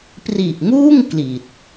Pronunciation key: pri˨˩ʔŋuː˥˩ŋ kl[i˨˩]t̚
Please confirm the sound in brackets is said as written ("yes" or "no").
yes